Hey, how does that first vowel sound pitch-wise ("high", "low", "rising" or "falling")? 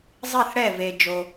falling